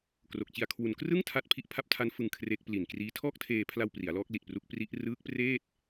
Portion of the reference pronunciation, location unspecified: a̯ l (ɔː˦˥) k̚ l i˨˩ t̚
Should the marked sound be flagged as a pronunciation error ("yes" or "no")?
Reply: no